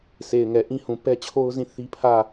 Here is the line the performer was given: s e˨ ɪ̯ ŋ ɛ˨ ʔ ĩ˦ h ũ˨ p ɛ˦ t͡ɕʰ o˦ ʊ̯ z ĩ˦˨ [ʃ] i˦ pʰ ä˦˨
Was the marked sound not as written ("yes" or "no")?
yes